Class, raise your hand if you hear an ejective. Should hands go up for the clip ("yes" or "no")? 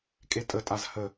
yes